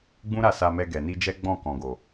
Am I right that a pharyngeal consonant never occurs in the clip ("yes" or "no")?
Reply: yes